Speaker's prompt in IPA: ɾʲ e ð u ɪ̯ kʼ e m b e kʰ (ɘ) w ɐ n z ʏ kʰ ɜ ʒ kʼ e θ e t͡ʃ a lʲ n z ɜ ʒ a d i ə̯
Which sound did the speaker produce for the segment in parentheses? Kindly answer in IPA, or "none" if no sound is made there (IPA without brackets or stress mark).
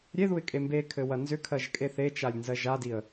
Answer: ɘ